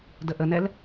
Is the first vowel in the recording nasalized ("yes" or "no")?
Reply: no